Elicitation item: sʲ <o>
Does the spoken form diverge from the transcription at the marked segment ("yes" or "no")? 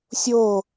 no